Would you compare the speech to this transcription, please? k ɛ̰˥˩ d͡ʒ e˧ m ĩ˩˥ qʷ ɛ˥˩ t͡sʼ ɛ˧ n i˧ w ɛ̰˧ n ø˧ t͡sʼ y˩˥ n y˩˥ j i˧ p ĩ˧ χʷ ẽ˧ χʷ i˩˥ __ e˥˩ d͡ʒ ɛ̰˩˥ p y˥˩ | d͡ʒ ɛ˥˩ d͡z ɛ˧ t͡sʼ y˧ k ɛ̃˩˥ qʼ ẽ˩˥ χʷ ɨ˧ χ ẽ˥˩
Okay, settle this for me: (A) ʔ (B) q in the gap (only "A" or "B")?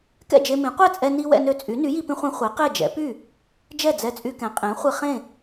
B